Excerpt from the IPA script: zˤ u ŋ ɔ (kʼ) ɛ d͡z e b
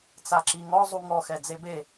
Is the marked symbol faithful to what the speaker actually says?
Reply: no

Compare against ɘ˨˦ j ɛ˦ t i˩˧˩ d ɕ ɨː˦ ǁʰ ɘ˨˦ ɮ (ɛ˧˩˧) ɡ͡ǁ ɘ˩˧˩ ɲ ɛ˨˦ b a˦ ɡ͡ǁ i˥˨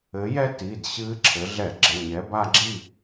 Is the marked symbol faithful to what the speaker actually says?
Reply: yes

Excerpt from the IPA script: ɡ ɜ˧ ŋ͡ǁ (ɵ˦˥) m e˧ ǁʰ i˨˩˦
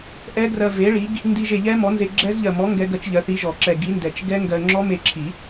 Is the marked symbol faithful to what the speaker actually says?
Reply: no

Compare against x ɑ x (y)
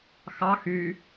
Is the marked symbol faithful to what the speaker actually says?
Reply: yes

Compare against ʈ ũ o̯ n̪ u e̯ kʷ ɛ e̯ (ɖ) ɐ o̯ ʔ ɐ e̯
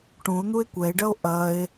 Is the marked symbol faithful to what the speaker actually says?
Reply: yes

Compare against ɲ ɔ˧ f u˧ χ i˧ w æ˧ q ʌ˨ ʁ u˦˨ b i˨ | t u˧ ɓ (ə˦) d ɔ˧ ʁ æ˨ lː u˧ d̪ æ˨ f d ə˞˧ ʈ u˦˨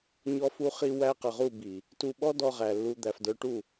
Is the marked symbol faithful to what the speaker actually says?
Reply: no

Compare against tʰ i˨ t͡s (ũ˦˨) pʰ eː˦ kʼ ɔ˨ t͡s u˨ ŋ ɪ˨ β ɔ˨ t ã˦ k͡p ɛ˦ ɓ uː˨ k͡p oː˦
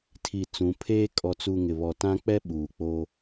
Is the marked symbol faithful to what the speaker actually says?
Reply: no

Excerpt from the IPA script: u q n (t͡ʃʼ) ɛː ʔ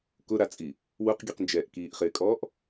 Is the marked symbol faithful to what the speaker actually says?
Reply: no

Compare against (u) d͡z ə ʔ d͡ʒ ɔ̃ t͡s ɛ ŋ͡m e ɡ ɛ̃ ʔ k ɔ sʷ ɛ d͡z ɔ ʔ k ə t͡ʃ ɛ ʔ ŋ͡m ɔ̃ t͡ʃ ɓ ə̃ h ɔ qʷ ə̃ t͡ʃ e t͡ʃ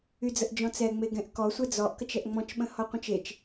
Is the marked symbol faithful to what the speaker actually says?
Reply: no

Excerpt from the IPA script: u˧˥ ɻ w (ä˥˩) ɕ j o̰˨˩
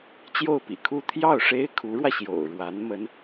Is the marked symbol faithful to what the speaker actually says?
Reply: no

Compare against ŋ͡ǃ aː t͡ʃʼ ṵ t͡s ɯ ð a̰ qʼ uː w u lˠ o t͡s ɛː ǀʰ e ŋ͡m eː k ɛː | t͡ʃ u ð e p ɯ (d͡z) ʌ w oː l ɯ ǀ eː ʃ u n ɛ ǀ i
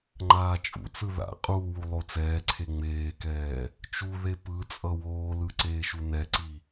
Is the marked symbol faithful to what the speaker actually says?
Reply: no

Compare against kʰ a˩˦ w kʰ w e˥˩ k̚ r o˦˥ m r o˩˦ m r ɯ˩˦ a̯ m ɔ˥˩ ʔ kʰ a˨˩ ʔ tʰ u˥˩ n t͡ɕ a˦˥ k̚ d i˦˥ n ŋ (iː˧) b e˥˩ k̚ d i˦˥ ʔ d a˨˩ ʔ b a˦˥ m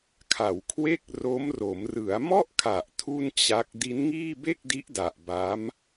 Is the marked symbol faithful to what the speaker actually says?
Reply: no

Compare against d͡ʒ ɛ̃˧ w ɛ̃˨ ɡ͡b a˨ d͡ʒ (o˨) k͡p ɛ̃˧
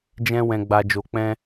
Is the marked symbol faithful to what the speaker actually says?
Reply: yes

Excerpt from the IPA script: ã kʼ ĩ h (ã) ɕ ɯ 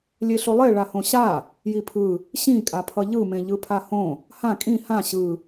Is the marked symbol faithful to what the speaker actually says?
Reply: yes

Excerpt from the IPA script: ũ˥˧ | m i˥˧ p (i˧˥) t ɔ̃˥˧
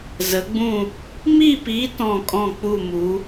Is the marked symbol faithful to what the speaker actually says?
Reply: yes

